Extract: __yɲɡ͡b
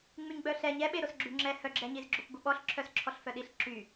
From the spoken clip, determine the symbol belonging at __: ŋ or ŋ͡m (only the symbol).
ŋ͡m